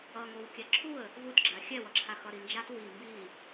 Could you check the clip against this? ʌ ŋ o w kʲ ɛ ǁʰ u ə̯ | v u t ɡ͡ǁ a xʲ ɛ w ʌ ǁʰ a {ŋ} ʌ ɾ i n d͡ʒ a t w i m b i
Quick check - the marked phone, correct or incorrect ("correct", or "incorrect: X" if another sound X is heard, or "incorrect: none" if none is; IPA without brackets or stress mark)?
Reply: incorrect: x